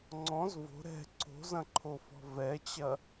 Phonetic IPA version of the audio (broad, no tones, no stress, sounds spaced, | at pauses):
ŋ͡ǀ ɔ̃ z v o̤ ɾ ɛ̤ ǀ o̤ z ɐ̃ ǃʰ o f ɔ̤ v ɛ t͡ɕ ɐ